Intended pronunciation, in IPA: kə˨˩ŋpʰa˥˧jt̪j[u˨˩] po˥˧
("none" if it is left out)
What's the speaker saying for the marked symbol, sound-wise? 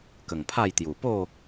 u˨˩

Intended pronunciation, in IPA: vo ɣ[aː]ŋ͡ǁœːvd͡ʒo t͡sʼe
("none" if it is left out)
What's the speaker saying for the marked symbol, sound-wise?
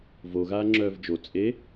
aː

